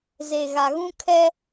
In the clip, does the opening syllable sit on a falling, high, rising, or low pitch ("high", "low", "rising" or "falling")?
low